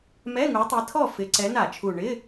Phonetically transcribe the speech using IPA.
m ɛ˧˥˧ ŋ u˨˦ tˤ i˨˦ tʰ ɔ˥˨ f ɪ˨˦ ǀ ɛ˨˦ n a˧˩˧ t͡ʃʰ u˨˩ ɳ ɪ˧˥˧

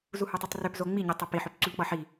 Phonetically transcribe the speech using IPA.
z u h u tˤ i tˤ r ø p z o ŋ͡m i ɲ i tˤ ʌ p i ħ ø p ǀ u ʎ k͡p ʌ ħ i

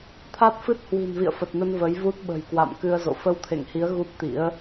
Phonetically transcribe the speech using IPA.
t̪ʰ a˦˥ t̚ f ɨ˦˥ t̚ h w i̤˨˩ n v ḭ˧˨ ə̯ f ə˨˩ t̚ n ə˧ n v ə˨˦ j v u˦˥ t̚ ɓ ə̤˨˩ j k w a̰˧˨ m k ɨ˧ ə̯ z o̰˧˨ f ə˧ w t̪ʰ ḛ˧˨ ŋ h i˨˦ ə̯ ɣ u˦˥ p̚ t̪ ḭ˧˥ ə̯

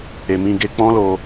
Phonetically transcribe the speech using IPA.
e˨ m ĩ˧ ɡ e˧ k͡p ɔ̃˦ l o˧

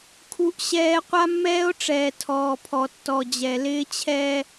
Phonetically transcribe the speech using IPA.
kʰ u˦ ʔ ɕ ɛː˦ qʷ a˦ mː ɛː˦ o̯ ʈ͡ʂ ɛː˨ tʰ ɔː˨ pʰ ɔ˨ tː ɔ˨ d͡ʑ ɛ˨ l ɪː˦ t͡ɕʰ ɛː˦

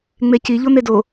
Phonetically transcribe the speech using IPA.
ŋ͡m e c i ʎ o n̪ e d o

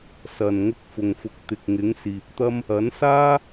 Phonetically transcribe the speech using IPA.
s ɐ˨ n ŋ ʊ˧ k̚ f ʊ˨ ŋ f ʊ˨˥ k̚ t̪ ɪ˨ k̚ ŋ ɪ˨˥ ŋ s iː˨ p̚ t̪ ɐ˥ m | ɐ˨˥ n s aː˥

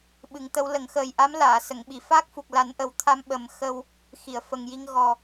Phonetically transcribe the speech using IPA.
ɓ ɨ˨˩˦ ŋ t̪ ə˧˥ w l ə˨˩˦ ŋ x əː˨˩ j ʔ a˧˥ m l aː˨˩˨ s ə˨˩˨ ŋ ɓ i˨˩˨ f a˦˥ k̚ f u˨˩ k̚ l a˨˩˦ n ʔ ə˨˩˦ w t̪ʰ a˧ m ɓ ə˨˩˦ m x ə˧ w | x i˨˩˨ ə̯ f ə˨˩ ŋ j i˧ ŋ ɣ ɔ˨˩

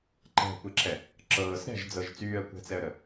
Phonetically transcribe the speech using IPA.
ǃ ɛ̤ kʷ e ǁ ɛ | ǁ ɤː s ɾ ɛ̤ ʒ d͡z ɤ ʒ t͡s yː ə̯ kʷ ɛ̤ t͡s ɛ ə̯ ɾ ə

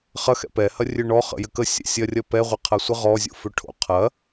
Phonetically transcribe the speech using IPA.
χ ɐ x ɛ̰ p ɛ h ɐ rʲ ø ɳ ɔ χ ə̰ j ɘ k ə sʲ ɛ̰ sʲ ɐ rʲ ɐ p ɛ ʁʷ ɘ qʰ ɐ sʷ ə ʁ ɔ zʲ o̰ f ø ʈʰ o̰ qʰ ɐ

